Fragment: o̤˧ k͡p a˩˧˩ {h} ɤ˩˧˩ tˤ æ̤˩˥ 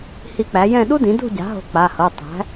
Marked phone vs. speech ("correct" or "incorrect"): correct